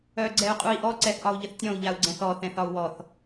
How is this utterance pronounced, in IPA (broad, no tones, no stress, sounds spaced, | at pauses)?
œ ɡ͡ǀ ɛ u̯ qʼ u i̯ ʔ ɔ ǀ ɛ θ ʔ ɒ u̯ ʎ ə θ tʲ ɔ̃ u̯ ʎ a u̯ ɡ͡ǀ ɛ̃ θ ɔ θ ɛ̃ θ ɒ u̯ w ɔ θ